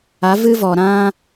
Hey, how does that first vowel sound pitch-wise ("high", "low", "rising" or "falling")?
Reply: rising